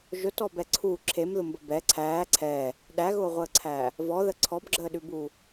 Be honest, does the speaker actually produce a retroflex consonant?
no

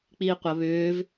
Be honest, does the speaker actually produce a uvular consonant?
yes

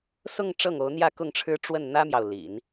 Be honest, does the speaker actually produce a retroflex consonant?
yes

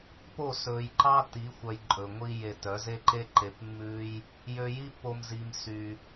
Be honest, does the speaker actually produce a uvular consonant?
no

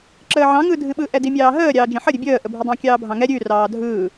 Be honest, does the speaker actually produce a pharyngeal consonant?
yes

